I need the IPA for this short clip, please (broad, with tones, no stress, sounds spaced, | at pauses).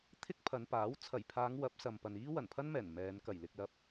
t̪ʰ ɪ˥ k̚ pʰ ɐ˨˧ n p aː˨˥ w t͡sʰ ɐ˨˩ j pʰ aː˨˧ ŋ w ɐ˨˥ p̚ s ɐ˨ m p ɐ˨ n iː˥ w ɐ˨˩ n pʰ ɐ˥ n m ɛː˨˩ n m ɛː˨˧ n k ɐ˨˩ j l ɪ˧ k̚ l ɐ˧ p̚